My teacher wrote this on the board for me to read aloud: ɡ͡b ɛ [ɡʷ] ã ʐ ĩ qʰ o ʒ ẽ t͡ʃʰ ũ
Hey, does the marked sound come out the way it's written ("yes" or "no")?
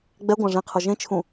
yes